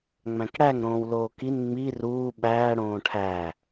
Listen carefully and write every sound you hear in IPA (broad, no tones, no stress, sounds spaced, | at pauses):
ŋ͡m æ̃ k ɽ æ ŋ ɾ õː w l oː k i n ŋ͡m i r uː ɓ æː ɽ õː ʈʰ æ